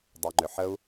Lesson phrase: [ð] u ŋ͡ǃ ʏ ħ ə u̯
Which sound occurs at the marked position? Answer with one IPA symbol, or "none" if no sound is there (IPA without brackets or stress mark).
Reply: dˤ